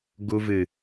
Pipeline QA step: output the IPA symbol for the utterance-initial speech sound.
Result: ɡ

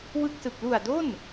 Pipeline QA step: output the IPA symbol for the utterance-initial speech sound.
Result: w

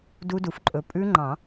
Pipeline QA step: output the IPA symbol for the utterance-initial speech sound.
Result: d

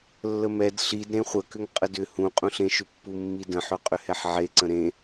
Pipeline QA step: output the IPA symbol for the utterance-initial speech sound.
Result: lː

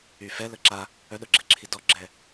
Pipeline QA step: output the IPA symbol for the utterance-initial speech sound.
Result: y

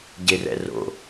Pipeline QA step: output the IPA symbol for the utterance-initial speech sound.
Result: ɟ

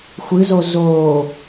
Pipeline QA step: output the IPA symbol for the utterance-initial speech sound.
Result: xʷ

